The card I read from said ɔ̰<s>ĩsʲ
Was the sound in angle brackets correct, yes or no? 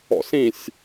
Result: yes